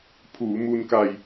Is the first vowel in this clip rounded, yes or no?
yes